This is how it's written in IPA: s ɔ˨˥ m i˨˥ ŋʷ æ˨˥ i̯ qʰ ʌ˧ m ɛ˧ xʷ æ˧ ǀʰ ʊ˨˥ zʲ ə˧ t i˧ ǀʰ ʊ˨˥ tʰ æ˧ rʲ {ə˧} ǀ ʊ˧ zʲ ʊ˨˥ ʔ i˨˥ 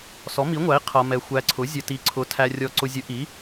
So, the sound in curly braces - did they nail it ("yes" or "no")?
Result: no